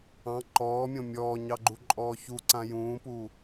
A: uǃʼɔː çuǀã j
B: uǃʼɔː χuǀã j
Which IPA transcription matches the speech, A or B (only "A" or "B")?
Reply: A